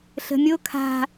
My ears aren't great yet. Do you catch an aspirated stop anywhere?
yes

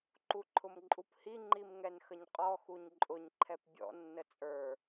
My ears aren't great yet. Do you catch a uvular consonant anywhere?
yes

